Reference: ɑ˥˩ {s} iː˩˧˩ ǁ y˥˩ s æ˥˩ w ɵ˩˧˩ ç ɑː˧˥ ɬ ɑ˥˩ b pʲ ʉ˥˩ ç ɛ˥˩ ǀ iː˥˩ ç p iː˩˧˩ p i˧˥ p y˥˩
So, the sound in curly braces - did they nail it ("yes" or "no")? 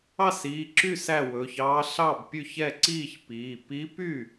yes